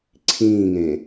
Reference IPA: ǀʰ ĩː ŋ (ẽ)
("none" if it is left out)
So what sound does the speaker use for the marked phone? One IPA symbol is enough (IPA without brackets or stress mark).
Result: ẽ